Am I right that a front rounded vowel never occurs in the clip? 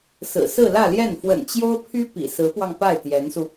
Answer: no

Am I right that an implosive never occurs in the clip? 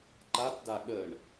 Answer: no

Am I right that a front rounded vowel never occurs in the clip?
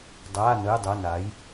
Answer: yes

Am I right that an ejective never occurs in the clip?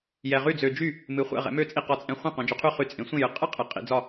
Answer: no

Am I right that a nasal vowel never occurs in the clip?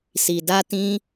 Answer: no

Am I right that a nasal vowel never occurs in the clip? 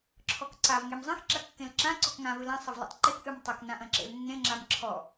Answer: no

